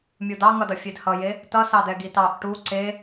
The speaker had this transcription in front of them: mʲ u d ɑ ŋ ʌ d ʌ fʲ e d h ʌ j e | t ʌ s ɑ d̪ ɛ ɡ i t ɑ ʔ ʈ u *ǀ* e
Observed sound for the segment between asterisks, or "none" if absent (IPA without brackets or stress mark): ǀ